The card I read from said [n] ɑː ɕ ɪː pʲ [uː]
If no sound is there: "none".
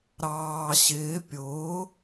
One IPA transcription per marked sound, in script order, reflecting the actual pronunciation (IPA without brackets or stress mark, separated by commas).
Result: ɾ, ʊː